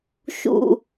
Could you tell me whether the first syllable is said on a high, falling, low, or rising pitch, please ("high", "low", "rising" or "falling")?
low